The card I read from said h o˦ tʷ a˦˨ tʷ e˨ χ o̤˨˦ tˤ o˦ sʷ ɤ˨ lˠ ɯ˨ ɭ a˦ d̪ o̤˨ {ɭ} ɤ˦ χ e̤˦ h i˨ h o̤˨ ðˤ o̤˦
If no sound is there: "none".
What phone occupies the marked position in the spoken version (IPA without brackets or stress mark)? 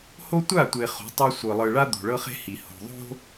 ɭ